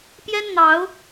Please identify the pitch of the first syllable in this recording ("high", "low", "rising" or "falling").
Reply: high